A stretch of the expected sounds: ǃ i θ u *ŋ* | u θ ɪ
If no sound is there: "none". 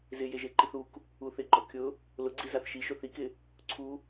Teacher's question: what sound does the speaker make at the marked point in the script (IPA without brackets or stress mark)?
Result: k